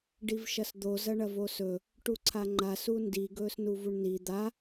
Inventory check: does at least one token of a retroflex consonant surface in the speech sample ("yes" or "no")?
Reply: yes